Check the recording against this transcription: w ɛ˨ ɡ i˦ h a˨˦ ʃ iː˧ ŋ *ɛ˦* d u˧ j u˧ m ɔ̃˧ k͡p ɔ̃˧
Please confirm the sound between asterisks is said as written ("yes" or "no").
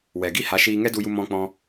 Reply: yes